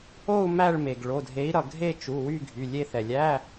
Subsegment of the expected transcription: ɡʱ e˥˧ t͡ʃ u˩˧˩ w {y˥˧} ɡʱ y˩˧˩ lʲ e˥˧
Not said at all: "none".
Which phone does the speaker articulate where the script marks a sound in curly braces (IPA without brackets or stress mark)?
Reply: y˥˧